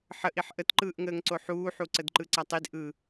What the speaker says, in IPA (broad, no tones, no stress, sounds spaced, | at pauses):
ħ ə ʔ i ħ ʔ ə t ǃ ɯː ʔ ŋ əː ŋ ǀ o ħ uː ħ u ǀ ə d ǃ ɯ ǀ a tˤ i d ʔ ɯ